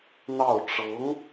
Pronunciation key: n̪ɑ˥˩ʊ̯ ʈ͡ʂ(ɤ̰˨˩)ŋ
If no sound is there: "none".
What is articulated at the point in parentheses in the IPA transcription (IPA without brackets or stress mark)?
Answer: ɤ˧˥